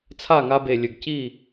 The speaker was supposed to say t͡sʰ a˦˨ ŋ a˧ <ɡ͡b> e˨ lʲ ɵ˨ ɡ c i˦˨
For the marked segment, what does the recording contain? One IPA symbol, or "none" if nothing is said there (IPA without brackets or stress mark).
b